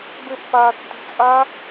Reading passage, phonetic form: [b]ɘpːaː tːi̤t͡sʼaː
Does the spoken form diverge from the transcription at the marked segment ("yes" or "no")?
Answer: no